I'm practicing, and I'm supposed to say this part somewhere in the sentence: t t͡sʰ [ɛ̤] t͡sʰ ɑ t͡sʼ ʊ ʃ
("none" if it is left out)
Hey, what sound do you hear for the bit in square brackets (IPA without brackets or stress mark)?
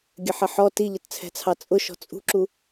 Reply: ɛ̤